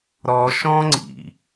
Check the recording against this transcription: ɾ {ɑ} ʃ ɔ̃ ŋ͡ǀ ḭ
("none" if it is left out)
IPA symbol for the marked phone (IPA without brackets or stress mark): ɔ